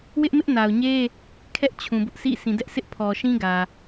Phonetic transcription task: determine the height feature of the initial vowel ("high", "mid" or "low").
high